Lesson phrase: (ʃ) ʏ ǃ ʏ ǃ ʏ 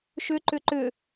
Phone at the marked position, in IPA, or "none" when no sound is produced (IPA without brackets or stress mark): ʃ